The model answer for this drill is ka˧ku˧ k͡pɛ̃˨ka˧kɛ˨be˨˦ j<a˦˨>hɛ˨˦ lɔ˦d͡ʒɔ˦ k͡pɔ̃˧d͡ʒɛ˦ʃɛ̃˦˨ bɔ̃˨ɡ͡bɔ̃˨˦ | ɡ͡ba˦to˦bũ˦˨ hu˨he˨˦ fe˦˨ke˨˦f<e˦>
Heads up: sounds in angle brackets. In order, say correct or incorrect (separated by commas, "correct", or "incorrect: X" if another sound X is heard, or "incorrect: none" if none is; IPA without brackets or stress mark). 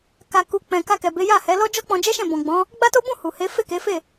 correct, incorrect: e˦˨